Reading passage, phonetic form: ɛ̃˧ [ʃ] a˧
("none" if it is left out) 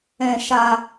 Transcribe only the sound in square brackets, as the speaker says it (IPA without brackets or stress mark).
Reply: ʃ